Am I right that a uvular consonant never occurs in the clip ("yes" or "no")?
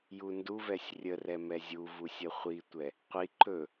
no